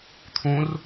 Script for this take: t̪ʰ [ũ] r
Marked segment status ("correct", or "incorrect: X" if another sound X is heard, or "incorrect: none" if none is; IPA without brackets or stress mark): correct